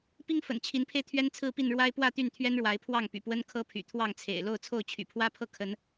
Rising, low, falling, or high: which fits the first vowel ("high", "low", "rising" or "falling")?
high